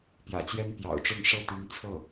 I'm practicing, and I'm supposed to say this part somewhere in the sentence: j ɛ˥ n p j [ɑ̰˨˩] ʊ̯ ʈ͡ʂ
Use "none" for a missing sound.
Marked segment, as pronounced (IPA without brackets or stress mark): ɑ̰˨˩